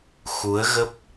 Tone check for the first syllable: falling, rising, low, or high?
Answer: rising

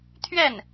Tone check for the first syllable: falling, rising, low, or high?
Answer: falling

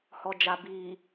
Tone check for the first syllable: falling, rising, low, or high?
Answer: low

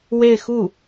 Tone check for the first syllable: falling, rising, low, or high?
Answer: falling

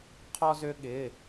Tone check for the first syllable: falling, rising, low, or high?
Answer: high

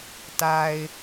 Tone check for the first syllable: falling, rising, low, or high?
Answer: low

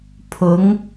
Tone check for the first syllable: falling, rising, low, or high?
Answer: rising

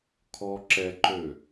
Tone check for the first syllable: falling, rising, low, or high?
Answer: high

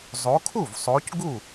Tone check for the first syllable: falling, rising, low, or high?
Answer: rising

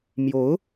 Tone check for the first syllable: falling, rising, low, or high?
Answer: rising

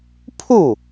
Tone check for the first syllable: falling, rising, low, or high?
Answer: falling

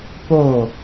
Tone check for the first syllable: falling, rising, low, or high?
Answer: falling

